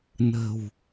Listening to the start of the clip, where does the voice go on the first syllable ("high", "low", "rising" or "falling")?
low